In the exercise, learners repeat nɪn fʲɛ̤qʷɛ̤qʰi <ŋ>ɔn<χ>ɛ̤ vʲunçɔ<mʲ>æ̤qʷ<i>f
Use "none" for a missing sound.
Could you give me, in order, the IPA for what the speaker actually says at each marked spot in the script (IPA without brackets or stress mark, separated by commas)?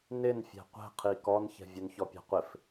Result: k, ç, pʲ, ɪ